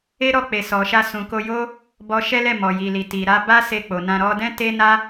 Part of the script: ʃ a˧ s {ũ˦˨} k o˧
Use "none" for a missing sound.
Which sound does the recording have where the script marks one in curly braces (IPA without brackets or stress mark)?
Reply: ũ˨